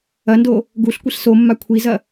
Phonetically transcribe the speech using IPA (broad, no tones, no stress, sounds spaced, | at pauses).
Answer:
ɐ n d o | ɡ u ɬ kʷ i ɬ s o mː a kʷʰ i z ɐ